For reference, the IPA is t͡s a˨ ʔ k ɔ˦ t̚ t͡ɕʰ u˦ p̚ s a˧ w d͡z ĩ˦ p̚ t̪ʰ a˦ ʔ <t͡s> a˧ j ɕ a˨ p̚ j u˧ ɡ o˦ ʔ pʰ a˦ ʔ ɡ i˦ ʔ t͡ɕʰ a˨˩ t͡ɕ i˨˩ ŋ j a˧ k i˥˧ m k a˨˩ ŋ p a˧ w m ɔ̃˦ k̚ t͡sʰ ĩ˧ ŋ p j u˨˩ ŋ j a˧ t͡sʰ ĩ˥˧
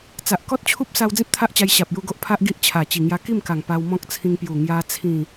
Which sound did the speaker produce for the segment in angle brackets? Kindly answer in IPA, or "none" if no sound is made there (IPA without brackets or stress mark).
t͡ɕ